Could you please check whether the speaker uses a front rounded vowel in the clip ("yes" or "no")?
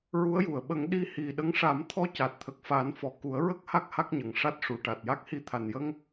no